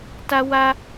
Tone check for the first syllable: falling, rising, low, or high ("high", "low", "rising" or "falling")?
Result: high